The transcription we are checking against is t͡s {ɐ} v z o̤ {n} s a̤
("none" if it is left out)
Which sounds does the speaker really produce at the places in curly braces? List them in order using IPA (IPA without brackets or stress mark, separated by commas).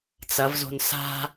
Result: ɐ, n